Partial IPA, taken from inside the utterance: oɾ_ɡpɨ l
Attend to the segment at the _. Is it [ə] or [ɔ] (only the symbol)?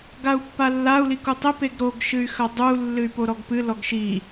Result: ɔ